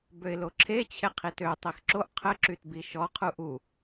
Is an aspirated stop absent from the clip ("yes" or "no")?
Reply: no